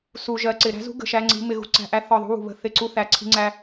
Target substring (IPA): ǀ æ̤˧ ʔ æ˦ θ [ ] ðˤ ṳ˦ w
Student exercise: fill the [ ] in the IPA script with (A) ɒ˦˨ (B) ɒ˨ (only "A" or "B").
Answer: A